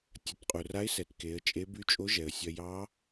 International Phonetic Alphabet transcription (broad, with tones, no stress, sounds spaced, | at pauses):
tʲ ɐ˩˧ t qʼ u˩ r a˧˥ ɪ̯ s ɛ˩˧ t k e˩˧ ə̯ t͡ʃʼ e˧˥ b y˧˥ t͡ʃʼ o˧˥ ʒ ɛ˩ ə̯ sʲ ɐ˧ j ɑ˧˥